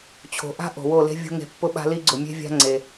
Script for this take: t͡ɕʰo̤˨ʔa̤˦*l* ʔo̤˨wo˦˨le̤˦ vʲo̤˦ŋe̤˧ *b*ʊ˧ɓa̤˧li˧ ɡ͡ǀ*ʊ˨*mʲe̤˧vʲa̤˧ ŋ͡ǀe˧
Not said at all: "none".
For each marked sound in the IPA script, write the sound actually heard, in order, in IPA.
none, pː, ʊ˨

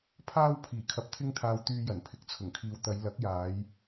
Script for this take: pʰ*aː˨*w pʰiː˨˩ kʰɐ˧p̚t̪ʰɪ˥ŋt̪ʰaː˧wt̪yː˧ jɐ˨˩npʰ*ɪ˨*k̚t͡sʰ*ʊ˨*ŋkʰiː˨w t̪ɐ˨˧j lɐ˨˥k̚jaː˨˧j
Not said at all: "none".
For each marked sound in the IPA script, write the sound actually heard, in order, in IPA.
aː˥, ɪ˨, ʊ˨˩

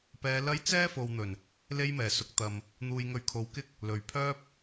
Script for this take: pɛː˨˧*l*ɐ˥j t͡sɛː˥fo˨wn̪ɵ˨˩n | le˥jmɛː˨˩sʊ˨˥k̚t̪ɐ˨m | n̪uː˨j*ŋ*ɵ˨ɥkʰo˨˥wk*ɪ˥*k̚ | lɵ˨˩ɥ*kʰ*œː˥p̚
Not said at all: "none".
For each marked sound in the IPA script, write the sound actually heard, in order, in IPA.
l, ŋ, ɪ˥, pʰ

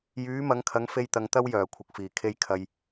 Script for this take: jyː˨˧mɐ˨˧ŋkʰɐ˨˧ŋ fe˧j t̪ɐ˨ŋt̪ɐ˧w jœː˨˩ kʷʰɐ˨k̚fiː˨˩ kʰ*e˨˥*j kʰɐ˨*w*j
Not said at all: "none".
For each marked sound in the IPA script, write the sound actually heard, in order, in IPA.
e˧, none

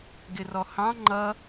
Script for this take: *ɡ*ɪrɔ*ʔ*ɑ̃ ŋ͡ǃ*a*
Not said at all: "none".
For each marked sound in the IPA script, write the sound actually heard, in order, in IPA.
ɡ, h, ʌ

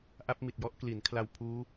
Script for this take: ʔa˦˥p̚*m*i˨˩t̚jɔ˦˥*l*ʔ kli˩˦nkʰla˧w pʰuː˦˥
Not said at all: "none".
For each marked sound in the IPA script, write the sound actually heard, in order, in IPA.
m, none

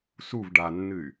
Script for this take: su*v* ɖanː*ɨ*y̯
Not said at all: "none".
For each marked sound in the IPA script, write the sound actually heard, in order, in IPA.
v, ɨ

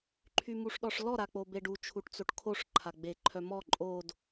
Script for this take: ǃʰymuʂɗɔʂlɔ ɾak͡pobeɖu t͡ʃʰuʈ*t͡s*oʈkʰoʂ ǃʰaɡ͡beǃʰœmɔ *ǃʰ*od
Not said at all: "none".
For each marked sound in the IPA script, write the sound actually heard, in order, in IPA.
t͡s, ǃʼ

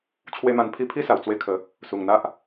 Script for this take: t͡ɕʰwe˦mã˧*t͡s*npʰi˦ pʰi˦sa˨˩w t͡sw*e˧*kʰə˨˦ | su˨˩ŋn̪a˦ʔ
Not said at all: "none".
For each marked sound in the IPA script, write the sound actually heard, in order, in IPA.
none, e˧

